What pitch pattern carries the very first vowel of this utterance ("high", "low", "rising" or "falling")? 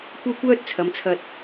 high